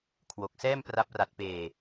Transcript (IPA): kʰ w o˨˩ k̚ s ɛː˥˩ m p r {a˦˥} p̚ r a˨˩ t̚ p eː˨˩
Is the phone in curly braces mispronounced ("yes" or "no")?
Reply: no